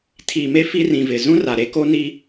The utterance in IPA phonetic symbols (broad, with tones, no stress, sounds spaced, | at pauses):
tʰ i˨ m e˦ f i˦ r ĩ˨ v ɪ˨ z ũ˦ r a˨ ɾ e˦ k o˦ n i˦